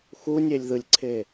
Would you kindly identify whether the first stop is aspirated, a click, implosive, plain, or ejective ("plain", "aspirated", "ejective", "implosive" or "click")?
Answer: click